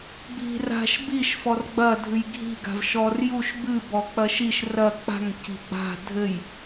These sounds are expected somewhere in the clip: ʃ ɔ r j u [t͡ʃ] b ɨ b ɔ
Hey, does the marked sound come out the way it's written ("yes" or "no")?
no